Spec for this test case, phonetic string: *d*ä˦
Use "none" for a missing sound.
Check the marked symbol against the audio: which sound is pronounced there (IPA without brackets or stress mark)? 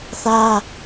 θ